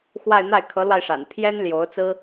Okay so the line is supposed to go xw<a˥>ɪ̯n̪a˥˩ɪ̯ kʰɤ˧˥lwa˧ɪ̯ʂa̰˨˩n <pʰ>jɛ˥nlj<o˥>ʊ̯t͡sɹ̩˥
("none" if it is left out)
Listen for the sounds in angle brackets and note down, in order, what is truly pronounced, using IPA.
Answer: a˥˧, pʰ, o˧˥

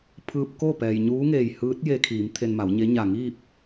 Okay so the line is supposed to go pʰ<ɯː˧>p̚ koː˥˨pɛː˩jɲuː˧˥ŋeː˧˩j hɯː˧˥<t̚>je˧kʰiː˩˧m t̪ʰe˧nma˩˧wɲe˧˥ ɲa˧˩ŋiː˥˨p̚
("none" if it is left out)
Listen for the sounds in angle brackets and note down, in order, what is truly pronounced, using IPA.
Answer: ɯː˧, t̚

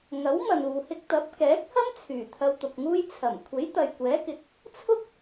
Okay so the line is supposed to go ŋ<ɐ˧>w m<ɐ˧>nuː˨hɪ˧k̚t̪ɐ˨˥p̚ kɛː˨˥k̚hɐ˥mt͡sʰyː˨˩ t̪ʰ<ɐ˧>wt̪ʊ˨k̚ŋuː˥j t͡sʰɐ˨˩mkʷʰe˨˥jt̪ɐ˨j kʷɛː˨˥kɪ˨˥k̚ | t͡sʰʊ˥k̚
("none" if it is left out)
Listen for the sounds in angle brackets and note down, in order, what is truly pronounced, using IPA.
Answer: ɐ˨˥, ɐ˨, ɐ˧

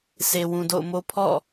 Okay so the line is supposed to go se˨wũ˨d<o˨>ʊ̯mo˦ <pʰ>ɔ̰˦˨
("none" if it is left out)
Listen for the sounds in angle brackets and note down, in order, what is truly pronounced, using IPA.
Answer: o̰˦˨, pʰ

